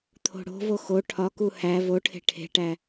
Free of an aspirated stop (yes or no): no